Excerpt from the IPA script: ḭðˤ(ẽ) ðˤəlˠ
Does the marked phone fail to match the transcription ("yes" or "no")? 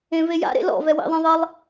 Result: no